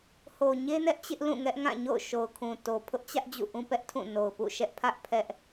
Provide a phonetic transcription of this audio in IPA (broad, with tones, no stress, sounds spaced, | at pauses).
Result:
h o˨ ɲ e˦ n ɛ˦ ʔ t͡ɕ ɪ˦ ʔ l ũ˦˨ ŋ ɛ˦ ʔ ŋ ã˦˨ ɲ o̰˦˨ ʊ̯ ʃ o˨ ʊ̯ kʰ ũ˨ t o˨ pʰ ʊ˦ ʔ t͡ɕ ä˦ ʔ d͡ʑ ṵ˦˨ ʔ ũ˦ p ɛ˦ ʔ tʰ ũ˦˨ n o˨ ʊ̯ p ṵ˦˨ ʃ ɛ˦ ʔ pʰ ä˦ ʔ pʰ ɛ˦ ʔ